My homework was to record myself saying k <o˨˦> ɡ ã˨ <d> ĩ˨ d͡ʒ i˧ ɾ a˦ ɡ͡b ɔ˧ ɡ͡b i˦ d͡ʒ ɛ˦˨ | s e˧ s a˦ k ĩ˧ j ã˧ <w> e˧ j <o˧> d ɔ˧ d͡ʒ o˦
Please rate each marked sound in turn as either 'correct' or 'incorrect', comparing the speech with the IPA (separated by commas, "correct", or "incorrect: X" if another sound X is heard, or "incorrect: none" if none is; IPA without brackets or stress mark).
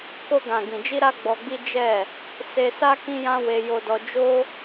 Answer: incorrect: o˧, incorrect: ɡ, correct, correct